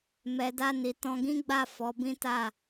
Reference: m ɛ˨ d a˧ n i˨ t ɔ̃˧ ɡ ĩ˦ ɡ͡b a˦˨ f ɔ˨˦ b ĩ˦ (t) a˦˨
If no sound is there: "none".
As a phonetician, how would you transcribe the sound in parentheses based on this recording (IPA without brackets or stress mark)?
t